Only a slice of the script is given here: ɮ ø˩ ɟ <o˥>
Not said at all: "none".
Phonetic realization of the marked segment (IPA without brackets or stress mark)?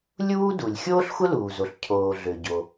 o˩